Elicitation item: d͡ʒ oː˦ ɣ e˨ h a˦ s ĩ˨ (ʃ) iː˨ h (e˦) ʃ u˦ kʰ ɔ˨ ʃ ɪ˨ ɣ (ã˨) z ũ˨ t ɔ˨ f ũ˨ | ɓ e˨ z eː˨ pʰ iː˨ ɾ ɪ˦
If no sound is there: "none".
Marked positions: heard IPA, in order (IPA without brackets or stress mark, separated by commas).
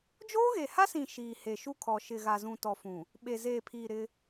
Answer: ʃ, e˨, a˨